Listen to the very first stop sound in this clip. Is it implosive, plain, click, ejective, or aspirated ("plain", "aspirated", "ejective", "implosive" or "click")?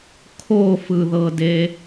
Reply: aspirated